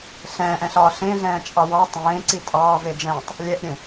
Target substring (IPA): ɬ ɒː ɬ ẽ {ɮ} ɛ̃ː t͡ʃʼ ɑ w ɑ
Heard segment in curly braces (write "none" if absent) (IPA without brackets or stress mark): ɮ